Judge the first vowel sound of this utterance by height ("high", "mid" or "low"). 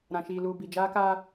low